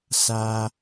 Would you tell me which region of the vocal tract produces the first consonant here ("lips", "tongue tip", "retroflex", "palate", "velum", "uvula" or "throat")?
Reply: tongue tip